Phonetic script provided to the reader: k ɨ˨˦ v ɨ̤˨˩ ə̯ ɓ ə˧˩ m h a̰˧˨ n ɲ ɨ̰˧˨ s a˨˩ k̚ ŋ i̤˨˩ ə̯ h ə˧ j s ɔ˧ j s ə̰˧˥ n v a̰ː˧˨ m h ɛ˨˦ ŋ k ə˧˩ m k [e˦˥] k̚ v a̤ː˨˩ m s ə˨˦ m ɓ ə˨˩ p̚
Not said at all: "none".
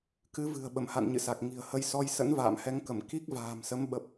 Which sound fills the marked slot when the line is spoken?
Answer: i˦˥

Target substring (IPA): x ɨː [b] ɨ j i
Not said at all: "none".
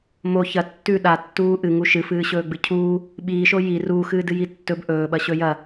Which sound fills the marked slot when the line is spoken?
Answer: d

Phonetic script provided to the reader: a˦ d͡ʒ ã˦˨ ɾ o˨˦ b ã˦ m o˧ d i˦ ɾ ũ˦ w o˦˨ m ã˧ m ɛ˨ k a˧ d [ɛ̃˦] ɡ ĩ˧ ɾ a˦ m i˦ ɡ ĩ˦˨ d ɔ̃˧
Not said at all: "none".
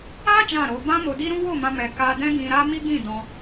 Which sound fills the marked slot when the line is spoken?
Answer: ɛ̃˦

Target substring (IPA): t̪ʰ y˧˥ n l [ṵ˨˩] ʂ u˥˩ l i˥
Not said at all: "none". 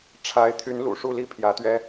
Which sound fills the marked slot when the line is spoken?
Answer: ṵ˨˩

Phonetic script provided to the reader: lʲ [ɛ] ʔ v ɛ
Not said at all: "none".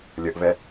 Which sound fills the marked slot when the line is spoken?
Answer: ə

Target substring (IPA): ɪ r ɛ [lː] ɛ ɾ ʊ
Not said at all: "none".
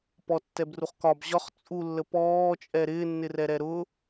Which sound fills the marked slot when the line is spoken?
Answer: ɾ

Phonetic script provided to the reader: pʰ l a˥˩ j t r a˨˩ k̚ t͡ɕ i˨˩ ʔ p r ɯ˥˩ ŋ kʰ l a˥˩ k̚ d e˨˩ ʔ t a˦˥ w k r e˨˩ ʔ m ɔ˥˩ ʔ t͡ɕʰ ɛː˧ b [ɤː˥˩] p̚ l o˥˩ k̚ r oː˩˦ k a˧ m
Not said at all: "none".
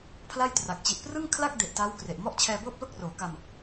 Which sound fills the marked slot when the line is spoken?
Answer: ɤː˥˩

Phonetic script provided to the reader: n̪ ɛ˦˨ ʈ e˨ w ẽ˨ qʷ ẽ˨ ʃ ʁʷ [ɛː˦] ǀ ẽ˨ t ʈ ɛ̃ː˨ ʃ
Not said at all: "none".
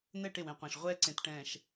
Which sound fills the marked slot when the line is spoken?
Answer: ɛː˦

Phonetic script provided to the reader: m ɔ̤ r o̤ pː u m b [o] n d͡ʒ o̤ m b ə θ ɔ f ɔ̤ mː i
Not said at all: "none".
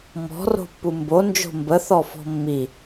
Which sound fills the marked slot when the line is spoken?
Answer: o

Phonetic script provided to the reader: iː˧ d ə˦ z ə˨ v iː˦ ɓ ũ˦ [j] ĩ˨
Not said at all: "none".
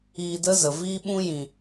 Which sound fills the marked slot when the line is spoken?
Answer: j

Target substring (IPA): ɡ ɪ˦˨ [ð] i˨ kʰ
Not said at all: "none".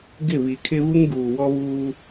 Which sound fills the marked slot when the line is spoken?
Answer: β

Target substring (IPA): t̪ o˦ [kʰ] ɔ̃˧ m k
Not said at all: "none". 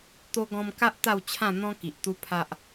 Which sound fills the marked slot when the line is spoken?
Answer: ɡ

